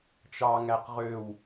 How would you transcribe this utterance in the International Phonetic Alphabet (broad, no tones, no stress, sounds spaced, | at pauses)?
t͡ʃ ɑ ŋ æ q ʁ ø w